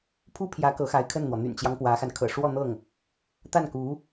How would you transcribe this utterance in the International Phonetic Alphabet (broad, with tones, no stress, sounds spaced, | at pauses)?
pʰ u˥ pʰ j ä˧˥ k ɤ˧˥ x a˧˥ ɪ̯ kʰ ə˥˩ n n̪ w ɔ˩ n̪ y̰˨˩ n t͡ɕ j ɑ˦ ŋ p w ä˧˥ x a˧ n kʰ ɤ̰˨˩ ʂ w ɔ˥˧ n̪ ɤ˥˩ ŋ | t̪ a˥˩ n k u˧˥